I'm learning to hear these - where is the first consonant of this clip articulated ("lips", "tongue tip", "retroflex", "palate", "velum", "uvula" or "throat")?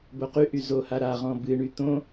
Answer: lips